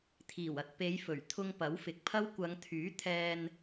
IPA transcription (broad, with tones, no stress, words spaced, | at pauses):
t̪ʰiː˨˩wɐ˧t̚ pe˨˧j fɵ˨˩ɥ t̪ʰʊ˧ŋ pɐ˨˥wfɪ˨˥k̚pʰɐ˥w kʷɐ˨˧ŋt̪ʰyː˨˥ t̪ʰɛː˧n